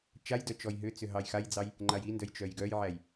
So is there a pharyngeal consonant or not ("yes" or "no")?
yes